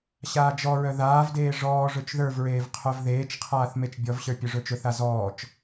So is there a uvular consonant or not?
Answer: yes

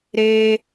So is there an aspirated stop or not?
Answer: no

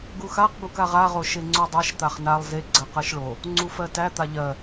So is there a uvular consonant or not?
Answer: yes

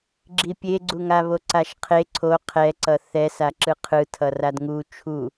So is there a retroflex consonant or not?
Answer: no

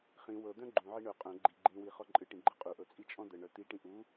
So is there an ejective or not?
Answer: yes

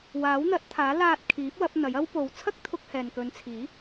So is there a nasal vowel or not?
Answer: no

